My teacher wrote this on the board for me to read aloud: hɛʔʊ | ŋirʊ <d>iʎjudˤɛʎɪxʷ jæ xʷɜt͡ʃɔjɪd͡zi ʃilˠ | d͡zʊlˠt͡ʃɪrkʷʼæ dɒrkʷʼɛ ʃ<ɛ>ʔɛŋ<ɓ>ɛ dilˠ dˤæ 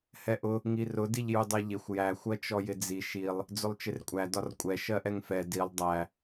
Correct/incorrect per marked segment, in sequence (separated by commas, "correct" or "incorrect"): correct, incorrect, incorrect